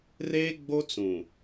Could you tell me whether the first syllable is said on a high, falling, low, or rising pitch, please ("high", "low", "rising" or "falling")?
high